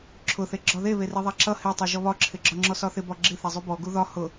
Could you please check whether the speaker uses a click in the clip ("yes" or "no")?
yes